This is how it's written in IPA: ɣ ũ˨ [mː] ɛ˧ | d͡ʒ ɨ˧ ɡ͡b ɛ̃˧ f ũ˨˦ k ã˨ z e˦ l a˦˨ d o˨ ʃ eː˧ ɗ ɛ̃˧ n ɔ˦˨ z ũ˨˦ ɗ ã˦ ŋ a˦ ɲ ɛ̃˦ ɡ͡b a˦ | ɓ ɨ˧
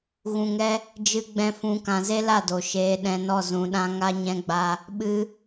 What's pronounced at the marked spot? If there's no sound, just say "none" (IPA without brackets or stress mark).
ŋ